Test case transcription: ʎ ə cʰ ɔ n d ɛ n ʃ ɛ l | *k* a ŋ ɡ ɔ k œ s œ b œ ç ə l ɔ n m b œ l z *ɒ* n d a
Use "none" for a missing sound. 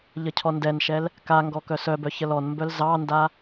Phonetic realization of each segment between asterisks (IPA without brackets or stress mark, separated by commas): k, ɑ